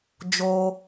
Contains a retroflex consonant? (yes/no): no